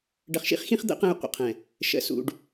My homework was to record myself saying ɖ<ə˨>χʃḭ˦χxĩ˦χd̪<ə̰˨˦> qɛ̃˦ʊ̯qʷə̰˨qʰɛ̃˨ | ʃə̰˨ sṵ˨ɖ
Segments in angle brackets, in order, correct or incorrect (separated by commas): correct, correct